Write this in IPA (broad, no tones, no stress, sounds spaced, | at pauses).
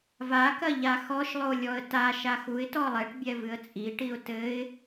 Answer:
v a k ɐ ʎ a x ɔ ʃ lˠ o lʲ ɔ ə̯ t a ʃ a x u ɪ̯ t ɔ lˠ ɛ ʈ bʲ ɛ v ɨ ə̯ t͡sʼ i ʈ i ʊ̯ t ɘ ɪ̯